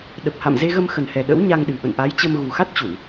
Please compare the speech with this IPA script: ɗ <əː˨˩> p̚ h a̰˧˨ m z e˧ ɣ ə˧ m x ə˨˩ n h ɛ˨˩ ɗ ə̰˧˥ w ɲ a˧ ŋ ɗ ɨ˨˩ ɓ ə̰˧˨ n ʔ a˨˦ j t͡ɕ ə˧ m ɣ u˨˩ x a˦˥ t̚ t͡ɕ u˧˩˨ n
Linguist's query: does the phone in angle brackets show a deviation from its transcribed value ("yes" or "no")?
yes